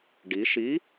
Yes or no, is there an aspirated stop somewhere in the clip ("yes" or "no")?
no